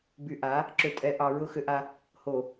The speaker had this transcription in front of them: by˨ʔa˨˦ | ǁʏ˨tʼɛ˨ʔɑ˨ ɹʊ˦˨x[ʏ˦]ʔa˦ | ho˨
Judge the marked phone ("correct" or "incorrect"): correct